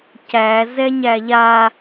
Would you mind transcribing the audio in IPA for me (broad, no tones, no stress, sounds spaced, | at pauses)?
c æ z ɛ ɲ æ ʎ a